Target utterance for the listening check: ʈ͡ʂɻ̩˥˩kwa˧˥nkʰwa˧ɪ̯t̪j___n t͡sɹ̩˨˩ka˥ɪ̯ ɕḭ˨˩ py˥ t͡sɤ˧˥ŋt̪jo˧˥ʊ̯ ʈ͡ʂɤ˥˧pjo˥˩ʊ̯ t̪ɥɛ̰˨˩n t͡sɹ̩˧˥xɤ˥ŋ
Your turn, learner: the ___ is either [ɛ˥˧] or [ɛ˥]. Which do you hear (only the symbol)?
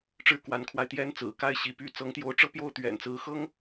ɛ˥